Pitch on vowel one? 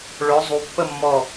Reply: rising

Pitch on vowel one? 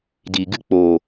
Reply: low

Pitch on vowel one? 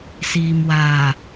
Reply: low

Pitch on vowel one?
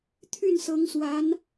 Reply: falling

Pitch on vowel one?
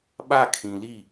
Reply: falling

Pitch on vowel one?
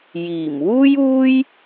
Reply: low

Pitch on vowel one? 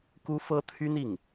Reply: high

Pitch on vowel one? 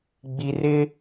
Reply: low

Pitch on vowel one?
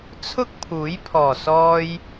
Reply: high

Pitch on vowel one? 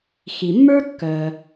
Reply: low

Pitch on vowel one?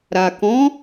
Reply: low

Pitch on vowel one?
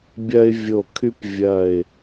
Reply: high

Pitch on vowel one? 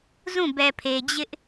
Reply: falling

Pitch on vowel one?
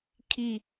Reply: falling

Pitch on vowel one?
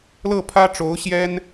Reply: falling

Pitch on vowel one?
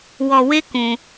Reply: low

